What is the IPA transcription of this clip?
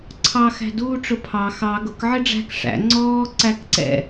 ǀʰ ɑ x æ̤ d uː ʈ͡ʂ ʊ pʰ ɑ x ɑ ɡ ʊ k ʕ ɪ ɖ͡ʐ æ̤ k ʂ æ̰ ŋ͡ǀ ɔː ǀ æ k ǀ ɛ̰

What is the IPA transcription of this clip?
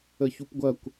ə ç u p ɡʷ ɐ kʷ

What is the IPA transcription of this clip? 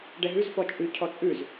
ɖ ɛ ɦ ʉ z f ɔ t͡ʃʼ ʉ cʰ ɔ t͡sʼ ʉ z

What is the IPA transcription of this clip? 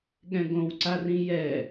ɠ ɛ̃ ɡ õ w ǀ a r ĩ j ɛ

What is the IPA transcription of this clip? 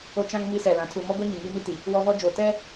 o˦ t͡ʃ ã˦ ŋ m i˦ s ɛ˨ l ã˨˦ tʰ u˨ m ɔ˦ ɡʷ a˦ ɲ ĩ˨ ŋ iː˦ m i˦ t i˨ | w ɔ˦ v ɔ˦ d͡ʒ oː˨ t ɛ˦

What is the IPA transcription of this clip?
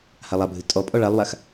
h a lˠ a bʱ ɨ tʼ ɔ pʼ ɔ ɭ a lˠ w a x

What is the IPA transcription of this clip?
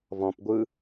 v ɔ̃ p ɡʷ ɯ

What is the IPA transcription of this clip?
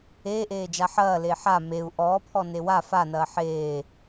eː ʔ eː d͡ʒ a ħ ɐː l eː ħ a m e u̯ ʔ ɔː pʰ ɔ n e w a f a n ɐː ħ eː

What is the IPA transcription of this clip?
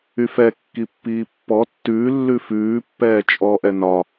y f ɛ kː i pː iː pː ɔ tː ʉː lː ʉ f ʉː pː ɛː t͡ʃʼ ɔ ʔ ɛ n ɒ

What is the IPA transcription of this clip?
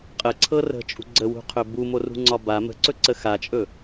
qʼ ə ǀʰ ɤ r ə̤ t͡ʃʼ ṳ ɡ͡ǀ ə w ṳ qʰ ɵ b u m o r ṳ ŋ͡ǀ ɒ b a m ə̤ ǀ ɵ ǀ ə x a t͡ʃʼ ɵ

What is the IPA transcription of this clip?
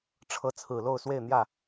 ʈ͡ʂʰ ɤ˨˦ t͡sʰ ɹ̩˨˩ l o˥˨ ʊ̯ s w e˥˨ ɪ̯ n̪ j ä˥˨

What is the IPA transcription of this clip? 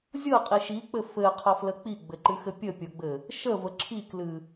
zʲ ɤ qʼ i ʃ i k͡p ɘ f ɘ qʰ ɒ f l ə k͡p i ɡ͡b ɘ ǃ ɨ x ɘ pʲ ə pʲ ɤ ɡ͡b ɘ | ʃ ə v ə ǁʰ i k l ɨ

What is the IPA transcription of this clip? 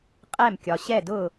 qʼ ɛ˥˧ m kʲ ɒ˧ ɕ ɛ˥˧ d ʊ˥˧

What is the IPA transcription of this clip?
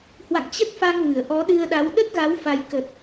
h w a̰˧˨ ŋ t͡ɕ ə˦˥ t̚ f a˧ ŋ v ɨ˧˩ ə̯ ʔ ɔ˨˦ ɗ ɨ˧ ə̯ ɗ a˨˦ w ɗ ə˦˥ t̚ ɣ a˨˦ w f a˧ j k ə˨˩ t̚

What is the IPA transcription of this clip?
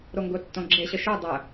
ɾ o ŋ ɡ ʊ tː õ ɡ͡ǁ e ɕ ə ʃ ɵ dˤ ə

